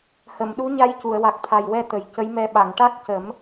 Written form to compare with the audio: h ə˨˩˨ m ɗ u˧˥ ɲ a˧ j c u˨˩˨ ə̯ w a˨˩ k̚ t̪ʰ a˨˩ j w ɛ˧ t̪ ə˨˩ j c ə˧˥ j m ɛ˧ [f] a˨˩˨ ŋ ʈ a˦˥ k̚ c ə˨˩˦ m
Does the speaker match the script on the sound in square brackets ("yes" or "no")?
no